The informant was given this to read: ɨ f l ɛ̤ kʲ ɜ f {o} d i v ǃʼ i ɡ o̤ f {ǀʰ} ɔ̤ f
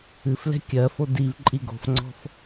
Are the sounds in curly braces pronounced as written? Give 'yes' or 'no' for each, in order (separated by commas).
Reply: yes, no